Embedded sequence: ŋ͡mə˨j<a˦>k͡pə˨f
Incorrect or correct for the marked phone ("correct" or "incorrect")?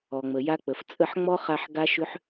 correct